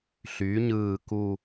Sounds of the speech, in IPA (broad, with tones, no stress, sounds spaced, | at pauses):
ɬ y˩˧ ɲ ɯː˨˩ k u˨˩